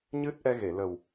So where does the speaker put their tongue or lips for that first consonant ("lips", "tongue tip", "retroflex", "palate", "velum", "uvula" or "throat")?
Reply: palate